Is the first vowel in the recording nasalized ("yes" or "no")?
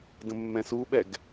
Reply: yes